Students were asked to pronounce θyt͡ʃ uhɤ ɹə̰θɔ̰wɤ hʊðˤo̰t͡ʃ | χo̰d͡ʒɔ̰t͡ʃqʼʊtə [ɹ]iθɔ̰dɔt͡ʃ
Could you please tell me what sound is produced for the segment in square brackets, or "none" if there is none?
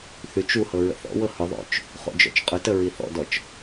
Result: ɹ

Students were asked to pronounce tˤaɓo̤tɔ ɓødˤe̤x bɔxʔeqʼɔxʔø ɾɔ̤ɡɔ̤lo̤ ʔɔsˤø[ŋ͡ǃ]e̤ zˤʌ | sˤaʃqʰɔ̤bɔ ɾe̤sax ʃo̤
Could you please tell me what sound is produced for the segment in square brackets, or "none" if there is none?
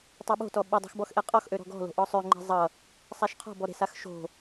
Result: ŋ͡ǃ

